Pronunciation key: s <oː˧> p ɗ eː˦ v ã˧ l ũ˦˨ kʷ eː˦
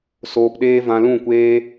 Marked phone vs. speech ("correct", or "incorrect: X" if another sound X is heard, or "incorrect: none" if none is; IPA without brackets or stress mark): correct